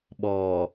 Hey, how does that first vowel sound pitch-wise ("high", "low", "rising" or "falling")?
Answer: low